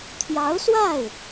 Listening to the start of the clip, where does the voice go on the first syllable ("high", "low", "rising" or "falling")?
rising